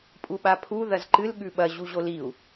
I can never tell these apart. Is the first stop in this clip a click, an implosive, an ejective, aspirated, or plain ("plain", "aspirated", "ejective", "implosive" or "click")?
ejective